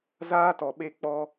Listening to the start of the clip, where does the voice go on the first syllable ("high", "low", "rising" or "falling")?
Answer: high